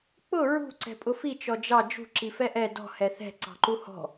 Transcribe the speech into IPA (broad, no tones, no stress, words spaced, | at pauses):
k͡pʊ ɹṳ ǀɛ̤pʼʊfi t͡ʃɔd͡ʒɑ d͡ʒṳ ǁifɛʔɛ dɔ̤ hɛθɛ̤ ǀɑ̤ǃuhɔ̤